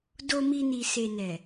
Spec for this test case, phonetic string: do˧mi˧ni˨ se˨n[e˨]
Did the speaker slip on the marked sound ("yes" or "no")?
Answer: yes